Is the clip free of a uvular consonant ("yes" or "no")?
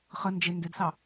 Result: no